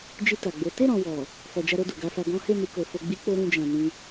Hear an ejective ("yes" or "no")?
no